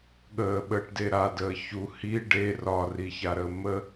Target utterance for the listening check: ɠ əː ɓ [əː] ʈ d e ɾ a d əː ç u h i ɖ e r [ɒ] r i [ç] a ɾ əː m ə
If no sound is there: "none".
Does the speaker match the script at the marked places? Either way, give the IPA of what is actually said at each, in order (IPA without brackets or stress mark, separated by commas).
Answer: əː, ɒ, ç